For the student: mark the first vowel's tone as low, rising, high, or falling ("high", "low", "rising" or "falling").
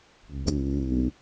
low